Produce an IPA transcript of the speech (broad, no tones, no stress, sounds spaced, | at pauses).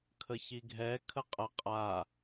kʰ ə ç i ɡʱ ɛ kʰ ə qʼ ə qʼ a